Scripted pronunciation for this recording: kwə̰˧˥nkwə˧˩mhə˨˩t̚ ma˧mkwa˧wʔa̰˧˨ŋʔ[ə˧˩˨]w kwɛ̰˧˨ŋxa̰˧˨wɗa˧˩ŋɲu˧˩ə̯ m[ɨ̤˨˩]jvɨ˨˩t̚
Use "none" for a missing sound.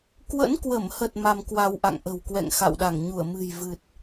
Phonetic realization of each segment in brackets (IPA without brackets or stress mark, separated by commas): ə̤˨˩, ɨ̤˨˩